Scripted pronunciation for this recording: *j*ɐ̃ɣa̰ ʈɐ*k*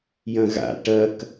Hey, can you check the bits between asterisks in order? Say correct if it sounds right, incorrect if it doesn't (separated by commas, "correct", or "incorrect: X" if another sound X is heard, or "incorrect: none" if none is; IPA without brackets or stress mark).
correct, correct